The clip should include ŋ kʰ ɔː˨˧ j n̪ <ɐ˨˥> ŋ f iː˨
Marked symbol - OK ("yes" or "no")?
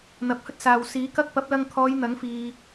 yes